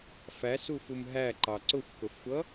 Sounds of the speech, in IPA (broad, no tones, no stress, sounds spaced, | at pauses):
f æ s u f u m ɦ æ ǃ ɑ ǀ ʊ xʷ k ʊ f xʷ ʌ